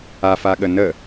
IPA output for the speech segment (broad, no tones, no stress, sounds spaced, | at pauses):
a f a ɠ ə n ə